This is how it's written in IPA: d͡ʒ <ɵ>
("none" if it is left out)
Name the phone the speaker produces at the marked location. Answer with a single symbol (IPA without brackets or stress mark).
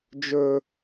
ɵ